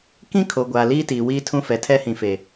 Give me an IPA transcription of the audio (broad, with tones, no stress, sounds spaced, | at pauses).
k ĩ˦ kʰ o˨ ɡʷ aː˨ l iː˦ t iː˨ w iː˦ tʰ ũ˦ f ɛ˨ tʰ ɛ˦ h ĩ˨ f e˨